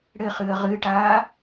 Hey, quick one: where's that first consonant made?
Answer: retroflex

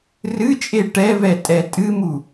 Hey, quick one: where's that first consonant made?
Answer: tongue tip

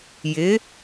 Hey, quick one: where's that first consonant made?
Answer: palate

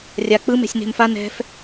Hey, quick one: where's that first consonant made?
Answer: tongue tip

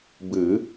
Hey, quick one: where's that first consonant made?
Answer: lips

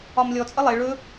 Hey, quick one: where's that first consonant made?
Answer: lips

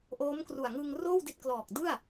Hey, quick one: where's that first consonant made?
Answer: throat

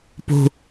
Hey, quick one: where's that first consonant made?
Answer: lips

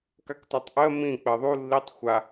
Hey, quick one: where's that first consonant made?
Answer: velum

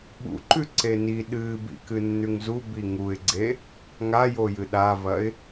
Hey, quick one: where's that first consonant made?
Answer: lips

